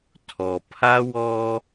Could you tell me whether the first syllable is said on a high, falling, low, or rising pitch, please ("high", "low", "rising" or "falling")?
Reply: low